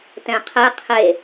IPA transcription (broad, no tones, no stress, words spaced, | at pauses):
tɛ̃qʰɛ qʰe